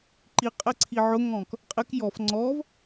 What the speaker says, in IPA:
ǃ i qʼ ɛ ǀʰ i ʕ ʊ ŋ ɔ̃ k | qʼ ɪ k j ɔ f ŋ͡ǀ ɔ v

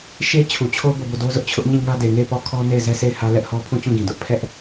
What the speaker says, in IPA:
ʃ e˦ t͡ɕʰ u˨ t͡ɕʰ o˦ b o˦˨ b o˦˨ d o˦ z ʊ˦ ʔ t͡ɕʰ ʊ˦ ʔ ɲ ĩ˦˨ ŋ ä˦ d e˨ ŋ e˦˨ ɪ̯ p ɔ˦˨ kʰ ɔ˦ n e˦˨ ɪ̯ z ɛ˦ sʰ e˦˨ ɪ̯ h ä˦ l ɛ˦ ʔ h ɔ˦ pʰ ũ˦˨ t͡ɕ ũ˦˨ ɡ ĩ˨ d ʊ˦ ʔ pʰ ɛ˦ ʔ

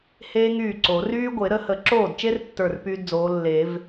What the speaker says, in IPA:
h eː˥ ŋ yː˥˩ ǀ o˨˩˦ r yː˥ ɡʷ e˨˩˦ ɾ ə˨˥ h ə˨˩˦ ǁ oː˥˩ d t͡ʃ e˥ r tː ə˞˥˩ r p yː˥ d d͡z oː˨˥ lː e˨˩˦ v

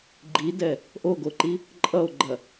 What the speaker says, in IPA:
ɡ͡ǃ i d ɛ | ʔ o ɡ o ǃ i | ǃʼ ʌ o̯ ɡ͡ǃ ɐ

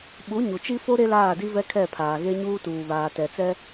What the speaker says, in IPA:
ɓ u˨˦ ɲ u˨ t͡ʃ i˦ f o˦ ɾ e˦ l aː˦˨ d i˦ v ɛ˦ kʰ ɛ˦˨ pʰ aː˨ ɣ e˦ ɲ uː˦ t uː˨ β aː˨ t ɛ˨ t͡s ɛ˦

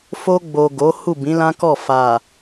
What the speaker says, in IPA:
f o˧ ɡ͡b o˨ ɡ o˨˦ h u˦˨ b ĩ˨˦ l ã˦ k ɔ˦˨ f a˨

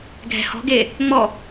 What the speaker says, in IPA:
ɡʱ ɛ̤ h ɔ̤ ɡ e | ŋ͡m ɔ

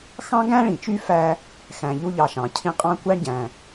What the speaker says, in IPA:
x ɑ̃˥ ɡ æ̃˥ ɭ ĩ˩ t͡ʃ y˦ f æ˦ | x æ̃˨ ʎ u˦ ʎ ɑ˨ ʃ ɑ̃˩ cʰ ĩ˦ qʼ ɑ̃˥ kʷ æ˥ ɳ ɟ æ̃˩

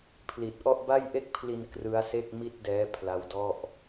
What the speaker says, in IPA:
pʰ l i˨˩ t̚ ʔ ɔ˥˩ ʔ b a˥˩ j ʔ e˥˩ k̚ pʰ l i˧ n k r ɯ˦˥ a̯ s e˥˩ k̚ m i˥˩ t̚ d ɛː˦˥ pʰ l a˦˥ w d ɔ˥˩ ʔ

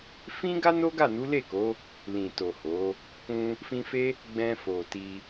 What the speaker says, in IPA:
f ĩ˦ ɡ a˦ n o˦ ɡ a˦˨ n u˨˦ l e˦˨ k o˨˦ | l ĩ˨ t o˨ h o˨˦ | k ũ˧ | f ĩ˧ f e˦ | ɡ͡b ɛ̃˧ f o˨ t i˧

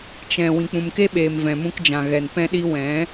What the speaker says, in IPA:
t͡ʃ ɛ̃˨ w ĩ˨ k͡p ũ˨ m k e˦ ɓ eː˨ m v ɛ̃˨ m ũ˧ k d͡ʒ ã˨ ɣ ɛ˨ n p ɛ̃˧ ɗ i˧ w ɛ̃˨˦

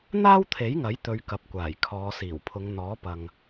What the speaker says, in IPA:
n̪ aː˥ w t̪ʰ e˨˥ j ŋ ɐ˨˥ j t̪ ɵ˧ ɥ k ɐ˨ p̚ kʷ aː˨˩ j kʰ ɔː˨˧ s iː˨˩ w pʰ ʊ˨˧ ŋ n̪ ɔː˨˥ p ɐ˨ ŋ

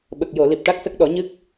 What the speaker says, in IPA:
ɓ ə˨˩ k̚ j o˨˩˨ l i˨˩ p̚ ʈ a˦˥ k̚ s ə˦˥ k̚ ɗ ɔ˨˩˦ ɲ ɨ˦˥ k̚

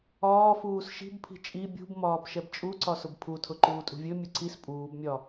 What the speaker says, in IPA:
ɒː f uː s ʃ i̤ b pʰ i̤ t͡ʃʼ i bʲ ṳ b m ɒː b ʃ ɛ b t͡ʃʼ u ǀ ɒ s ʊ b pʰ u tʰ ʊ ǃ uː tʼ ṳ vʲ ɵ mʲ ʊ ǀ i s pʼ uː b mʲ ɒ

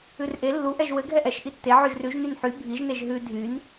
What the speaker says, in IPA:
ʉ r ʔ e lː u ʔ ɛ ʒ w ɘ ɡʱ ɛ ʔ ɛ ʃ ʔ i tː e ʕ ʉ ʒ r ʉ ʒ n y n ħ y bʱ i ʒ n e ʒ ɦ ʉ dʱ y n

